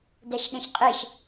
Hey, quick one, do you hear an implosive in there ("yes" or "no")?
yes